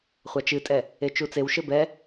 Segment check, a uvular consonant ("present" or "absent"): present